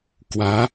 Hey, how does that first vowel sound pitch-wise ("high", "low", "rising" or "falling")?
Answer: rising